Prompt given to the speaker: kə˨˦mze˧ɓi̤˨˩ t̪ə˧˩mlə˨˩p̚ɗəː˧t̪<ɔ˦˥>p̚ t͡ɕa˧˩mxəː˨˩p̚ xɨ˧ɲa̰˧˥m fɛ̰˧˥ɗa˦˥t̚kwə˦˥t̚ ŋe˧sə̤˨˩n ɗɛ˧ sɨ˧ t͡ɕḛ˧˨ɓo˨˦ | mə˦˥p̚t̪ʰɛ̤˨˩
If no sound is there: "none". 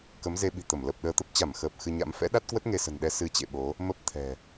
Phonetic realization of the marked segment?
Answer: ə˦˥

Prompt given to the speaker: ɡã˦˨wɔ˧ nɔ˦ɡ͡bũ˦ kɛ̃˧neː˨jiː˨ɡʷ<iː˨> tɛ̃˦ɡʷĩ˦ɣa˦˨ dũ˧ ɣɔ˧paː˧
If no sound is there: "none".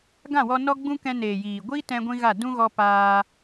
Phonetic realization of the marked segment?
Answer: iː˦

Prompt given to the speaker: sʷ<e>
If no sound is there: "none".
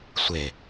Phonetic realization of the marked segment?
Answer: e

